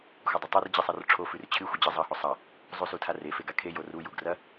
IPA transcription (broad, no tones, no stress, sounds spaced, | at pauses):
xʷ ɐ dˤ ɵ tˤ o r d͡ʑ i sˤ ɐ r ʈ͡ʂʰ o f ʉ r t͡ɕʰ ɨ xʷ ɨ d͡ʑ ɨ zˤ ɐ h o sˤ ɐ | zˤ u s u tʰ a r e f e ɡ a kʰ e j o r u j u ɡ r ɐ